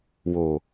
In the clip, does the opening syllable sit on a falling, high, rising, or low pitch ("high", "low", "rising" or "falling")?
low